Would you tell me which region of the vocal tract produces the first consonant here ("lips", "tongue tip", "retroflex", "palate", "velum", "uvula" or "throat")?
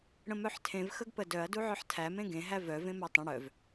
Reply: retroflex